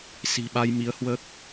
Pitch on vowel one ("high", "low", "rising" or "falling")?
low